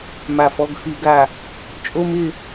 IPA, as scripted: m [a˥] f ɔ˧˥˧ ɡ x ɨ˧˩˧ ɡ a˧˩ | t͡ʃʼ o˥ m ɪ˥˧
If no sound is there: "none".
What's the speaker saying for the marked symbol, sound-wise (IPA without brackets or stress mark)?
a˧˩